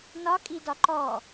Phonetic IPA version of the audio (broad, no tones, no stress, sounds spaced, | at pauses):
n ɒ kʼ i d ɒ ǃ ɔ